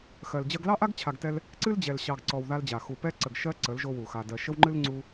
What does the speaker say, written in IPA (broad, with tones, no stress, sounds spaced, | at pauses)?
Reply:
x ɜ˨ l d͡ʑ ɜ˧ ɡ l ɑ˦ ʔ a˦ ɡ t͡ɕʰ a˧ ɡ t ɛ˦ l | ǀ ɨ˦ l d͡ʑ ɛ˨ l ɕ ɑ˨ ɡ ǀ ɔ˨ w ð a˧ l d͡ʑ a˨ x u˨ p ɛ˧ ǀ ə˨ ɡ ʃ ɜ˧ ǀ ə˨˦ l ʒ o˧ w u˨ x a˨ d ɜ˨ ʃ ə˧ w ŋ͡ǃ ɨ˧ l ŋ͡ǀ u˧